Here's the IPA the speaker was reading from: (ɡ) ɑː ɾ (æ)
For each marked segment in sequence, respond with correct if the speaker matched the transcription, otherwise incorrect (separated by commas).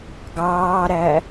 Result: correct, correct